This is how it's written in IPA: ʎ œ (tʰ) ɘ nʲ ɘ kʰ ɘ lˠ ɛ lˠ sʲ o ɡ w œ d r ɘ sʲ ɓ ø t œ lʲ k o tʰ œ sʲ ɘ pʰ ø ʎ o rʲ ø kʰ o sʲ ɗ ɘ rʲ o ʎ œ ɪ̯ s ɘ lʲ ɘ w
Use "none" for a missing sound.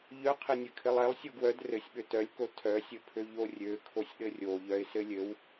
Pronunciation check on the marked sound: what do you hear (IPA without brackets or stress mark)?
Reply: qʰ